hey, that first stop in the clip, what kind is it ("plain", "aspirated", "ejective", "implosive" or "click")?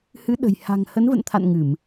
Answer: implosive